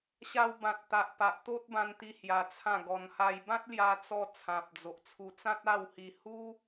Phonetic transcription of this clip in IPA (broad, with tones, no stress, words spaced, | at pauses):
ɕa˧wbã˨t̚t̪a˨ʔpa˨ʔ t̪o˦t̚bã˧nt̪i˧ hja˧t͡sʰã˥˧ɡɔ˧n ha˧j bã˦t̚lja˧t͡sɔ˧ t͡sʰã˨p̚d͡zo˨ʔt͡sʰu˧ t͡sã˦t̚a˥˧whi˧ hu˦